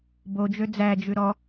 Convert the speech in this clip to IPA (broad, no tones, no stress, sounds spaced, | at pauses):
b o d͡ʒ ø d͡z æ d͡ʒ ʉ ɾ ɔ